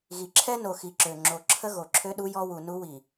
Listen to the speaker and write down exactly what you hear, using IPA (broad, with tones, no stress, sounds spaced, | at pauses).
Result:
ɣ i˨ ǁʰ ɛ˦ n o˨ x i˨ ǁ ø˨ ŋ͡ǁ o˨ ǁʰ ə˦ ɣ o˨ ǁʰ ø˦ ɗ u˦ j ɔ˦ w u˨ n u˦ w i˨